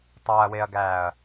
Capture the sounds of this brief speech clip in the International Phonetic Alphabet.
tˤ u ɐ̯ w e ɐ̯ ɡ æː ɐ̯

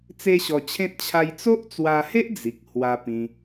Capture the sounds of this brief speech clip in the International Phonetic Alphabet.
t͡s e˦ ɕ ɔ˧ t͡ɕʰ ẽ˦ t̚ t͡ɕʰ a˧ j t͡s o˦ ʔ t͡s w a˧ h e˦ ʔ d͡z i˨ k̚ h w a˧ p ĩ˧

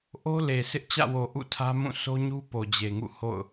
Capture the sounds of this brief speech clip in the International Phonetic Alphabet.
ʔ o˦ l e˨ sʰ ɪ˦ ʔ t͡ɕ ä̰˦˨ w o˨ ʔ ṵ˦˨ tʰ ä˦ m ũ˦˨ sʰ o˦ ɲ u˦ p o˨ d͡ʑ e˨ ŋ ṵ˦˨ h o̰˦˨ ʊ̯

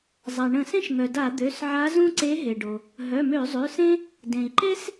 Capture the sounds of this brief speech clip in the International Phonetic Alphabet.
zˤ a˩ ɳ ə̃˧˩˧ s ẽ˥ ʃ ŋ œ˩ d a˧˩˧ d̪ ø˩˧˩ s ʕ a˧˥ z ũ˥ ǀ e˧˥ ɦ e˩ ɖ o˩ | ɦ œ˩˧˩ m ø˧˩˧ zˤ ø˩˧˩ s ẽ˥ | d ẽ˩ i̯ ǃ e˥ s

